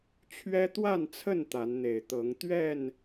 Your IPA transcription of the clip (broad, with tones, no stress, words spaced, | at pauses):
t͡ɕʰɥɛ˦t̪wa˥˨nt͡sʰə˥˨n t̪a˨˦nn̪e˨˩ɪ̯t̪ɤ˨˦ŋ t̪ɥɛ˥˨n